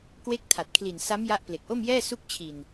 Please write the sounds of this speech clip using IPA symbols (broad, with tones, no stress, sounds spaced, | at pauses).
k w e˦˥ k̚ tʰ a˨˩ t̚ kʰ l i˨˩ n s a˦˥ m j a˦˥ ʔ p l e˨˩ k̚ ʔ o˥˩ m j ɛː˥˩ s u˦˥ k̚ t͡ɕʰ i˨˩ n